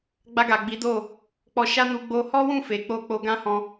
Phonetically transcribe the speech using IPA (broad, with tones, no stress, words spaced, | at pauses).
ɡ͡ba˧ɡa˨ɡ͡bi˨˦ do˦˨ | k͡pɔ˧ʃa˦nu˧ ɡ͡bo˧ hɔ˦wũ˦˨ fe˨ k͡po˧ k͡po˧ɡã˦hɔ̃˧